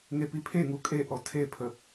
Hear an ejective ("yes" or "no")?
yes